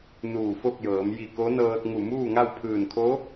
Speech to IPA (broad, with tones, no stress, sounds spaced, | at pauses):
n uː˧˩ f o˥˨ k̚ j ɤː˩˧ m j i˧˩ k o˧˥ n ɤː˧ t̚ ŋ u˧˩ m uː˥˨ ŋ a˥˨ w pʰ ɯː˧˩ n kʰ o˧˥